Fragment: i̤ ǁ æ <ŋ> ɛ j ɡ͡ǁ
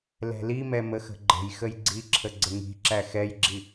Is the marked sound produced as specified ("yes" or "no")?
no